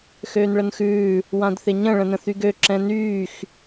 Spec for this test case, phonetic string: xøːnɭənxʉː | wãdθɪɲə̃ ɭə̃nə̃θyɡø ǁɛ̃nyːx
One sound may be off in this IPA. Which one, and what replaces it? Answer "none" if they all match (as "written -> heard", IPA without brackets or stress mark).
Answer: none